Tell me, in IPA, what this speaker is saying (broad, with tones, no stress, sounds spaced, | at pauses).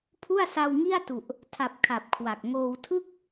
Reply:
pʰ u˥˩ a̯ s a˧ w ŋ i˥˩ a̯ t u˨˩ ʔ | tʰ a˨˩ p̚ kʰ a˨˩ p̚ kʰ w a˨˩ k̚ ŋ oː˧ w tʰ ɯ˥˩ k̚